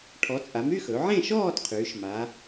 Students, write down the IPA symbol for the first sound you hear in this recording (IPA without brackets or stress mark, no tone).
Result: ʈʰ